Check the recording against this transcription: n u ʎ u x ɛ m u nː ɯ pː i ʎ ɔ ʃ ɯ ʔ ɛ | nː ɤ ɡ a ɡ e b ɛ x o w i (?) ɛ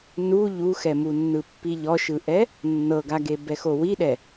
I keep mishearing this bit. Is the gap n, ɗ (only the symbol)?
ɗ